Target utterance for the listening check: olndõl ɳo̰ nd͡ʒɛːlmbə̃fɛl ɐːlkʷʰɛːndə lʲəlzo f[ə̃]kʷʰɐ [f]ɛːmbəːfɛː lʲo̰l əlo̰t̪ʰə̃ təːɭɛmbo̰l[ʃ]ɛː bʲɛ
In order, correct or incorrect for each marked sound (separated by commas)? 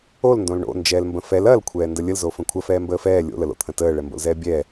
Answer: correct, correct, incorrect